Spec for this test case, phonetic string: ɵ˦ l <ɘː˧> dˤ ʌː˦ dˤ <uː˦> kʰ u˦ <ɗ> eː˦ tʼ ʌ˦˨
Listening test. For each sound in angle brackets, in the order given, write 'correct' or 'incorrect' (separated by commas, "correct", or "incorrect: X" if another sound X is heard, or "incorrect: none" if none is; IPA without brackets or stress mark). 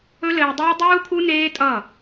correct, correct, incorrect: n